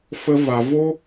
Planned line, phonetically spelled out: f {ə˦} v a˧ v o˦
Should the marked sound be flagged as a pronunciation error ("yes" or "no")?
no